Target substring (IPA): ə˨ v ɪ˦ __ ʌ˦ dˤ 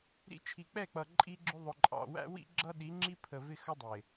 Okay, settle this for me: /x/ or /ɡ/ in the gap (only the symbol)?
x